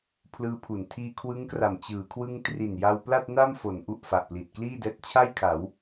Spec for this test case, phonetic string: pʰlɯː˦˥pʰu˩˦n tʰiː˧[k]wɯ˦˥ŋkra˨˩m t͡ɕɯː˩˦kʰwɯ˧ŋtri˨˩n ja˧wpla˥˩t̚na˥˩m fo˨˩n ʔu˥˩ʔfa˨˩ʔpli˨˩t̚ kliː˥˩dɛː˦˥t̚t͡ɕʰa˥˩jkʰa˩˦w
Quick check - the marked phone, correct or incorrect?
incorrect